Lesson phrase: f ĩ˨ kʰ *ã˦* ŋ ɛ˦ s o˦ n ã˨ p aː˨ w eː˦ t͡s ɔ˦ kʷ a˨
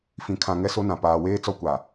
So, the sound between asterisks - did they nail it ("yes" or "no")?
no